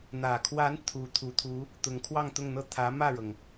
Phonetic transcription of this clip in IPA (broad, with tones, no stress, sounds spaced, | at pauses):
n̪ ä˨˩ kʰ w a˧˥ n t̪ʰ u˧˥ t̪ʰ u˨˩ t̪ʰ u˧˥ | t̪ ʊ˧˥ ŋ kʰ w ɑ˥˧ ŋ t̪ ʊ˥˧ ŋ n̪ ɤ˥˩ t̪ʰ ä˧˥ m ä˥˩ ɻ ɤ˩ ŋ